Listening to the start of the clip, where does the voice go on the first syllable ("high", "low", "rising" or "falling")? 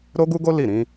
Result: high